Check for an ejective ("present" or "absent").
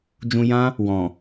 absent